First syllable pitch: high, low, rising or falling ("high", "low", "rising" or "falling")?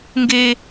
high